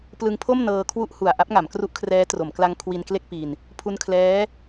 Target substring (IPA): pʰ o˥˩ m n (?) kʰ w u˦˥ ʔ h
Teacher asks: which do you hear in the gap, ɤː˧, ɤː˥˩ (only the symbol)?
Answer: ɤː˧